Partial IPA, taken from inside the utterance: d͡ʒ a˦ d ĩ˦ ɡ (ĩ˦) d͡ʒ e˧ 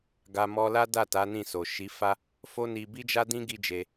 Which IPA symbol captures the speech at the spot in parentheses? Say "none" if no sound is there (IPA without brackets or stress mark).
i˦